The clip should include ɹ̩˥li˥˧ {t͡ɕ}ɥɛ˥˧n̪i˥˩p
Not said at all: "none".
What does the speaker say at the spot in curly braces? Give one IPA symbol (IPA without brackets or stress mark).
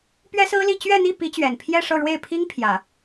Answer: t͡ɕ